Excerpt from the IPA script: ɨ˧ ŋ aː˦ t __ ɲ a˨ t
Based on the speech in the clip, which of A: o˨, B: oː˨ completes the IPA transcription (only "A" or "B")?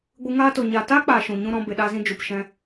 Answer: A